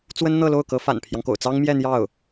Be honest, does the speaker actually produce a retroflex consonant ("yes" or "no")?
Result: no